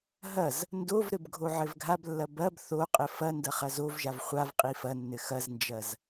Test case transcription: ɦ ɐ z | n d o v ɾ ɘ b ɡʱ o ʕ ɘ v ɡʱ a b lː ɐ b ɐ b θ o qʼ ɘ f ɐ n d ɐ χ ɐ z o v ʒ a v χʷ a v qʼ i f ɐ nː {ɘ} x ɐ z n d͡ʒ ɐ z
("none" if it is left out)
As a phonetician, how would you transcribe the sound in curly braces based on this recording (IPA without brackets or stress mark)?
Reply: ɘ